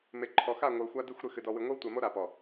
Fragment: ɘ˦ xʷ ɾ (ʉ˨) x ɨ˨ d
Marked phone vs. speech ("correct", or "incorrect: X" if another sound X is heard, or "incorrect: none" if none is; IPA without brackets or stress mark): incorrect: ɨ˨